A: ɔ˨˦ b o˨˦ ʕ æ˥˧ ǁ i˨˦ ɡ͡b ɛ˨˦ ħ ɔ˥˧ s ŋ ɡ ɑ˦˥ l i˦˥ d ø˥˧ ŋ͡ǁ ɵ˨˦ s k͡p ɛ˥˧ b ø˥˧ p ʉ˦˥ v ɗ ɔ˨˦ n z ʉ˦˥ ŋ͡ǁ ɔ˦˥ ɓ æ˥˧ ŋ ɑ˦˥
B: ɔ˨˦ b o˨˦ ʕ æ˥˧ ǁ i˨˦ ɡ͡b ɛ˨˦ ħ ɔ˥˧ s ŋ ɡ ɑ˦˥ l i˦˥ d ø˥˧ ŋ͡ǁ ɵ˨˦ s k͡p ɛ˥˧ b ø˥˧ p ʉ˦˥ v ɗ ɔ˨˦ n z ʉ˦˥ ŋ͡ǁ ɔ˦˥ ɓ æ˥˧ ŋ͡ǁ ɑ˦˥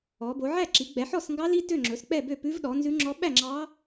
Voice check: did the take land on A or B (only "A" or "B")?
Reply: B